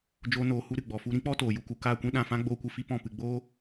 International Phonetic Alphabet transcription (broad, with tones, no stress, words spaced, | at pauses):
d͡ʒoː˦noː˧hu˦ ɾɨ˨ɡ͡bɔ˨fu˧ ɾĩ˦k͡pɔ˦toː˨ ju˧ku˧ kaː˦˨kʷĩ˦ ɗã˧fã˦ ɡ͡boː˦kʷɨ˧fi˦ pɔ̃˦˨pɨ˧ ɡ͡boː˦